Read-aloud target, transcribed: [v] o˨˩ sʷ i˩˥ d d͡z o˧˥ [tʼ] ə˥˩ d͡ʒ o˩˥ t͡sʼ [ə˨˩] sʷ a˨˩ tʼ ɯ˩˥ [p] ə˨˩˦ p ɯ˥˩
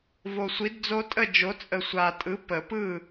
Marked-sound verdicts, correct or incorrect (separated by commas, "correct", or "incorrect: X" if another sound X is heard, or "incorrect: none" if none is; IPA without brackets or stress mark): correct, correct, correct, correct